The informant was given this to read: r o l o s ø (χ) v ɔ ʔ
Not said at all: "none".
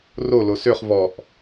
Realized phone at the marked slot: χ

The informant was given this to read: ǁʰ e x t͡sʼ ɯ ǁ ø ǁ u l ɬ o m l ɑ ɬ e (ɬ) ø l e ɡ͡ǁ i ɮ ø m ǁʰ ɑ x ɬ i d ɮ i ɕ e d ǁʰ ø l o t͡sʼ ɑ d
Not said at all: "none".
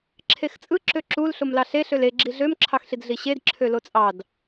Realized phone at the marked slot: ɬ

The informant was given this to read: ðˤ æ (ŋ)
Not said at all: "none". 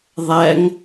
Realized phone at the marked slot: ŋ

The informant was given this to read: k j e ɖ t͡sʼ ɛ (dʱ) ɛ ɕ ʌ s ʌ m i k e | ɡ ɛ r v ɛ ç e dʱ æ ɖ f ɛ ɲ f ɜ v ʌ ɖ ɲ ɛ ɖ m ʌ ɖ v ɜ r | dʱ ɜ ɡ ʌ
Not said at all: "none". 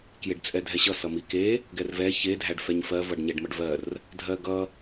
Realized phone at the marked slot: dʱ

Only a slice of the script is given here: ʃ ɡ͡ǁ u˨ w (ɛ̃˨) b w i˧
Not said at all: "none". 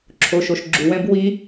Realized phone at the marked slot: ɛ̃˧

